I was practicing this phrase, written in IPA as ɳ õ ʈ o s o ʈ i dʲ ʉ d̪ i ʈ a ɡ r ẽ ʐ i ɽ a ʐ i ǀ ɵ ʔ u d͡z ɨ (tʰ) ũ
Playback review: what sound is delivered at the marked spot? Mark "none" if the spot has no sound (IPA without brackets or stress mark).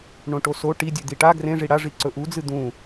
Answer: d̪